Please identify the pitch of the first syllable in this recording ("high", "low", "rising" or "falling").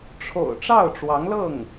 low